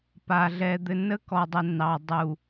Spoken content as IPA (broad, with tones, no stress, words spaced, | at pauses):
pa˨ ɮɛ˨ d̪ɘ˨nə˦kɔ˨dˤə˨ nɑ˨ dˤu˨